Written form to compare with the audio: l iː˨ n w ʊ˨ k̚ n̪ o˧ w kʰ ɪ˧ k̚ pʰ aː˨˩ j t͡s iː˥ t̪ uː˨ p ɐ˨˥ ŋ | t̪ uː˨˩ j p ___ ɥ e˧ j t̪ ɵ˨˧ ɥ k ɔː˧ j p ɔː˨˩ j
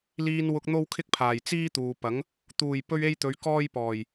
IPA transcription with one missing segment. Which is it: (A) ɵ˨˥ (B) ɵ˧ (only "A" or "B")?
B